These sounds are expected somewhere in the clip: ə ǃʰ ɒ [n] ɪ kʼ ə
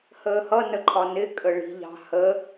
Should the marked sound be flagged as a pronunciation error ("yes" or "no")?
no